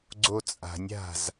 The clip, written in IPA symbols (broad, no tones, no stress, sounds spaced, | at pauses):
ɡ͡ǀ o t͡sʼ a̤ nʲ a̤ z